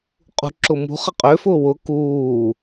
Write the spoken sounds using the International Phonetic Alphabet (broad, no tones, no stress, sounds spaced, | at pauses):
qʼ ṳ ǁ ʊ m ṳ χ ə qʼ ø f ʊː w ʊ k uː